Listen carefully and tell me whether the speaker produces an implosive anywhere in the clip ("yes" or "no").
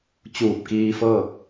no